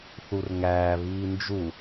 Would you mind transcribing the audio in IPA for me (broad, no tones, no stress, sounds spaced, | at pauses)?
θ u r ŋ æː β iː n d͡ʒ u